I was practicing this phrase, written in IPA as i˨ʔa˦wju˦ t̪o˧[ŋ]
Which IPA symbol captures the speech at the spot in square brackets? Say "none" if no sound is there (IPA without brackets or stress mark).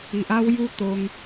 ŋ